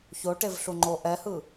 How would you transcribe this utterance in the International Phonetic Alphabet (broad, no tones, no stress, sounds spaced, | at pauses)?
ç o ʈ e v ɬ u ŋ͡ǃ o ʔ ɛ h ɯ